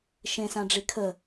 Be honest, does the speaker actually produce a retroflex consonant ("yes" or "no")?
yes